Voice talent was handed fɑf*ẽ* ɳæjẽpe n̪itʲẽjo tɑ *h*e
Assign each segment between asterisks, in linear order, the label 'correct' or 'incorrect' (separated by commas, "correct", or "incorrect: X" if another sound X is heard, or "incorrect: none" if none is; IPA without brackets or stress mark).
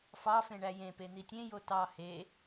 correct, correct